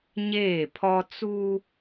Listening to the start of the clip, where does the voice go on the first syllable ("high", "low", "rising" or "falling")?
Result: falling